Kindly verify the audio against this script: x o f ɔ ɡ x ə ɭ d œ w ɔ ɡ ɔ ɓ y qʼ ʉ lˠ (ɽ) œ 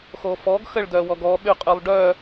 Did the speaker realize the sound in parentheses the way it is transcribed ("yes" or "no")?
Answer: no